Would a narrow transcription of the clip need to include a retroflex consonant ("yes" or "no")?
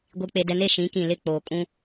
no